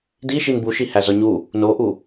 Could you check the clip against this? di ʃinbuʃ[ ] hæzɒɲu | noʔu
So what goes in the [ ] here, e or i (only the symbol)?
i